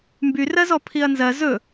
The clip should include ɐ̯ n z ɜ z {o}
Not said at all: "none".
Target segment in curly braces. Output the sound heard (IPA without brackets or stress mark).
ɵ